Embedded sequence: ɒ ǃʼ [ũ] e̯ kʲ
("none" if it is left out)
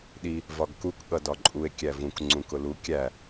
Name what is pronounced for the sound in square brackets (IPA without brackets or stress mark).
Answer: u